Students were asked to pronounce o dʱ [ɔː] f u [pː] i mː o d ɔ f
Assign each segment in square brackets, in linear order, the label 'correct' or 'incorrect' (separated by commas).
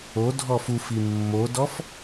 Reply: incorrect, incorrect